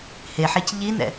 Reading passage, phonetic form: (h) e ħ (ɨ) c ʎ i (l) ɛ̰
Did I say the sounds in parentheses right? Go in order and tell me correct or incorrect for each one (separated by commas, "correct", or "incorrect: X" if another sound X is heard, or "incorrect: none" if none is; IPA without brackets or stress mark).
correct, incorrect: ɛ, incorrect: n